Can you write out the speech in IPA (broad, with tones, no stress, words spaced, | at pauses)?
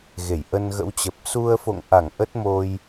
ɣe˧˩jʔə˧nɣə̰˧˥wt͡ɕə˨˩p̚ su˧ə̯fo̰˧˨ŋ ʔa˧˩ŋ ʔə˦˥t̚mo˧j